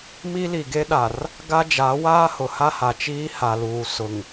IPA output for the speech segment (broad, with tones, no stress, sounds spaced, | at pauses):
m i˦ l i˨ ɡ e˦ ɗ a˨ r | ɡ a˦ d͡ʒ aː˨˦ w aː˦ h ʊ˨ h a˦ h a˨ t͡ʃ iː˦ h a˨ l uː˨ s ʊ˨ ŋ